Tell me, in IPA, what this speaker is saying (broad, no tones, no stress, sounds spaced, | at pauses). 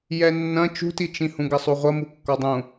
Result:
j ɛ nː ɐ̃ t͡ʃ ṳ t i t͡ʃ ĩ h ũ ɡ ɐ sˤ u ʁʷ ɐ m u kː ɒ dˤ ũ